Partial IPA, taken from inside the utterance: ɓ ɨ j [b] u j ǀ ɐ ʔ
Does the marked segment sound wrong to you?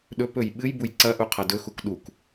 no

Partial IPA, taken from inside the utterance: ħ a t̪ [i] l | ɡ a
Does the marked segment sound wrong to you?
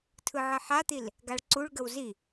no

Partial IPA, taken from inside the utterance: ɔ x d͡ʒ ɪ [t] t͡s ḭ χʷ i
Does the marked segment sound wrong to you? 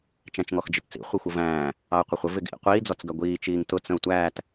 no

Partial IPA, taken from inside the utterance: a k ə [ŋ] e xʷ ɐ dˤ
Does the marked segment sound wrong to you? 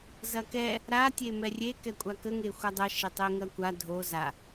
no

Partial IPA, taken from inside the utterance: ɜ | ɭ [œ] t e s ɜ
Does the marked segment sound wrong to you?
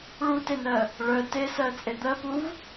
no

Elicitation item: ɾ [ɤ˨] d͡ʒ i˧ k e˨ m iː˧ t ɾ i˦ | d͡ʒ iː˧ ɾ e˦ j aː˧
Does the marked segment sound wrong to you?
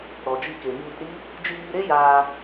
yes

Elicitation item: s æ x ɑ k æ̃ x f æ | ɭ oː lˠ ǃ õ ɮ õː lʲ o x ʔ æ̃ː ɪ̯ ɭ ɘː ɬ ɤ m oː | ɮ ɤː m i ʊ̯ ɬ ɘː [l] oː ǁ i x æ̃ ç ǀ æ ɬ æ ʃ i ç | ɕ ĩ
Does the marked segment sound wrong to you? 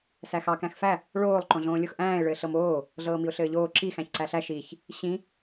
yes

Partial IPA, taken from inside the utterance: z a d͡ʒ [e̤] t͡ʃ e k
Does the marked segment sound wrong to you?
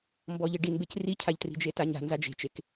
no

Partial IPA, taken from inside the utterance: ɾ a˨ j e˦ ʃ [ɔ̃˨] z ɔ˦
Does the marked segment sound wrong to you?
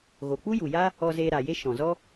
no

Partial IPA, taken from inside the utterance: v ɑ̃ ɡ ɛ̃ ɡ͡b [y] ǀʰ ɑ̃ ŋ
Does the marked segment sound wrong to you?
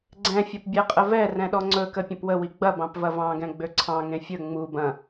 yes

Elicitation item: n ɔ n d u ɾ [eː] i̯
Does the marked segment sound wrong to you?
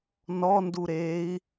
no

